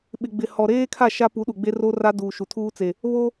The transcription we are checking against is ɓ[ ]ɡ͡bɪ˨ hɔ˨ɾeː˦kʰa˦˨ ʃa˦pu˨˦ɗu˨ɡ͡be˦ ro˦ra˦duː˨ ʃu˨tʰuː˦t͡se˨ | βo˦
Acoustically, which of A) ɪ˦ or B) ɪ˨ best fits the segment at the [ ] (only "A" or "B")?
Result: B